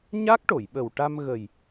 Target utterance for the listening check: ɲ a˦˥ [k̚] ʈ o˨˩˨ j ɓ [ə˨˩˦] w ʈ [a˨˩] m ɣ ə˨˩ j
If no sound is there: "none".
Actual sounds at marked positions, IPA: k̚, ə˨˩, a˧

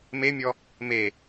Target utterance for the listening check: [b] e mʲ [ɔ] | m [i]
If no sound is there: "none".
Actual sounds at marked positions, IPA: m, ɔ, e

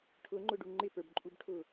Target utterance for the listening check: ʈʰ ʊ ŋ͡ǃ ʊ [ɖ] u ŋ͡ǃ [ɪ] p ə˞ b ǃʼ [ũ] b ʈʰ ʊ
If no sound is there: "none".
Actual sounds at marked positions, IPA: ɖ, ɪ, u

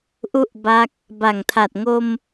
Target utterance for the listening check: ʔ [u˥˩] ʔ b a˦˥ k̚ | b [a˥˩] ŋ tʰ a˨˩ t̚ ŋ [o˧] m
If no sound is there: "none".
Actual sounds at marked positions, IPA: u˥˩, a˨˩, o˧

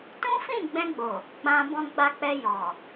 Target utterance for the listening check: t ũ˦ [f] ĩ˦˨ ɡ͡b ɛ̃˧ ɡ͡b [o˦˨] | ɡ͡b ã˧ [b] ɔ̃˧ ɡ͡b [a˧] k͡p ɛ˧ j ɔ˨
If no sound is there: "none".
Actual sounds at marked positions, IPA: f, o˨, b, a˧

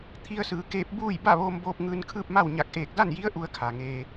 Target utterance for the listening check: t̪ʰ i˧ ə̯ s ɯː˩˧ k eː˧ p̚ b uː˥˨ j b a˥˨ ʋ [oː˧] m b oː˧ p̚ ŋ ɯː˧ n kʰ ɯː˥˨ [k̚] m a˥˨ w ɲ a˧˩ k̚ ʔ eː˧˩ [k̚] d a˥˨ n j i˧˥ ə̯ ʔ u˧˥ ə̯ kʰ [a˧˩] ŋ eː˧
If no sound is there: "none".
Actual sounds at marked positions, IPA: oː˧, p̚, k̚, a˩

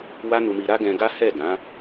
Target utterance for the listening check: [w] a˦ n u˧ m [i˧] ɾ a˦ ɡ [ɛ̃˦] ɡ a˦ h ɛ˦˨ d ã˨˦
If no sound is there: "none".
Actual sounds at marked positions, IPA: w, i˧, ɛ̃˧

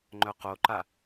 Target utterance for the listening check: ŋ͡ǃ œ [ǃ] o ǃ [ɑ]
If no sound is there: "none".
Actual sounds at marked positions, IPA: q, a

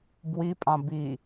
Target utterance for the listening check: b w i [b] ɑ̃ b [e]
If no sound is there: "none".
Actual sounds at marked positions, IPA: pʼ, i

